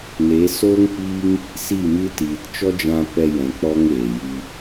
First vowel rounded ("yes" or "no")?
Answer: no